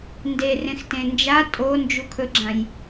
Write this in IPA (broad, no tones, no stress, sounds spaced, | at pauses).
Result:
n d e r ẽ x t ẽ n d͡ʒ a tʼ o n d͡ʒ u kʰ ɵ ɡ͡ǁ ã j